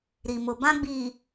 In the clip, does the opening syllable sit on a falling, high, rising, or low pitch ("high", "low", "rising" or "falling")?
low